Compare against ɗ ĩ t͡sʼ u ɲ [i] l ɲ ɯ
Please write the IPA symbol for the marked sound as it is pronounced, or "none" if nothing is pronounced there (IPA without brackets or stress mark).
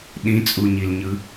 i